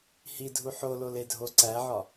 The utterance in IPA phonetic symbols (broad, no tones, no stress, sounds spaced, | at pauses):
h i dʱ u ħ o l o l e dʱ o ǀ æ ʕ ɒ